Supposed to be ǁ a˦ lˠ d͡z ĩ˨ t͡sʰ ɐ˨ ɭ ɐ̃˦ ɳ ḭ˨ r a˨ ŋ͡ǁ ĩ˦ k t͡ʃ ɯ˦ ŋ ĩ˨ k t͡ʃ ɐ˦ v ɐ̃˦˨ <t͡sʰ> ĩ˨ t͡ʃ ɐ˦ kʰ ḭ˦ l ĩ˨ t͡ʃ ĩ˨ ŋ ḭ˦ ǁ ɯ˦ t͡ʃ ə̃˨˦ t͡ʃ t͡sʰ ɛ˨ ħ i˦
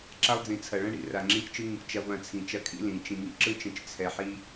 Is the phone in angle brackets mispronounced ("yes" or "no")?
no